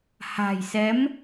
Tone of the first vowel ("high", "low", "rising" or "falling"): low